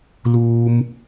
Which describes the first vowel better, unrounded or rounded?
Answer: rounded